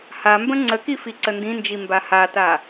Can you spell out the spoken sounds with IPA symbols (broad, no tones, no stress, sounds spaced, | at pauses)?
h a m b ə̃ ŋ͡ǀ ə k i f i ǀ ə n d ĩ n d͡ʒ i m b a h a t a